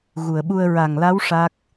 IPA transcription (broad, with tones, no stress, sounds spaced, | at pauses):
ɣ u˨˩˨ ə̯ ɓ u˧ ə̯ ɹ a˨˩ ŋ l a˧˥ w ʂ a˦˥ k̚